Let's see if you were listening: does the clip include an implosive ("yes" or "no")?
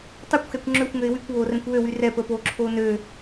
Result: no